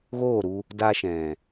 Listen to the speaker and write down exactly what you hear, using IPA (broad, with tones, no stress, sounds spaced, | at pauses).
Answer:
ɣ oː˦˨ ɾ u˧ | d a˧ ʃ ɛ̃˨